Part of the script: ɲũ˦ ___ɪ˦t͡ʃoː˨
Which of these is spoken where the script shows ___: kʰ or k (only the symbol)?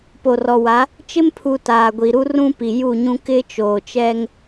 k